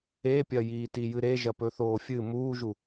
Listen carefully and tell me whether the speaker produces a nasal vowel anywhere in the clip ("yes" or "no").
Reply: no